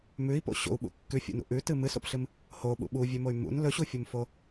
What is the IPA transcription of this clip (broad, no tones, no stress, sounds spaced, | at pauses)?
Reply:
m ʉ i̯ p o̰ ɕ o̰ u̯ ɓ ṵ kː ʉ fʲ ṵ n ṵ ʔ ʉ t ɨ m ɨ s o̰ p ɬ ɨ m | h o ɓ ṵ ɓ u vʲ ʉ m o y̯ m ṵ n l ɵ ɕ u fʲ u m f o